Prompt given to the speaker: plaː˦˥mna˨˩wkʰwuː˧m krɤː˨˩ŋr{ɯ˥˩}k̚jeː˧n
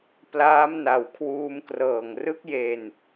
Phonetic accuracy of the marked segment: incorrect: ɯ˦˥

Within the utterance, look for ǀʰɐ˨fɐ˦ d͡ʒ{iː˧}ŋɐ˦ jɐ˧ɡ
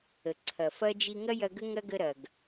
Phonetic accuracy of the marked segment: incorrect: i˧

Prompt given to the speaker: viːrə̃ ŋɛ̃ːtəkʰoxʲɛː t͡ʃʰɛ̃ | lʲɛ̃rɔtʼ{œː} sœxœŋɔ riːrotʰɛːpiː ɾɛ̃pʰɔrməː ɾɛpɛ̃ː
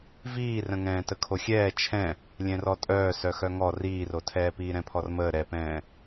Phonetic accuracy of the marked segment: correct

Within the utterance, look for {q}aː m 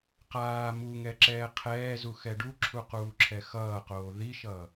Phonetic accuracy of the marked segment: correct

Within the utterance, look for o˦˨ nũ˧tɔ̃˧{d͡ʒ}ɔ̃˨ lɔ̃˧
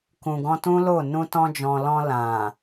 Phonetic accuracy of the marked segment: correct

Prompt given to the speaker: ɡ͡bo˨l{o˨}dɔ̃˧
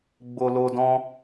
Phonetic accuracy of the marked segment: correct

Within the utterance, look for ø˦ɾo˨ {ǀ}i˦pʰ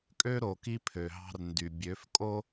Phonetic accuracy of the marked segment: incorrect: k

